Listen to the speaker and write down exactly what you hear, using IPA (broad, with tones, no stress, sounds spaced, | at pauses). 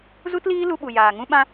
z u˦ t l iː˦ l u˧ ɓ u˨ j aː˨ ŋ ũ˦ ɓ ã˦